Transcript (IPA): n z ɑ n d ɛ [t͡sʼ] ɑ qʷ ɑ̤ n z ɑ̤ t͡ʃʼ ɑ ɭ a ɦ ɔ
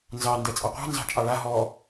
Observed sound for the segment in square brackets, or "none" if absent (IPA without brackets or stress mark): t͡sʼ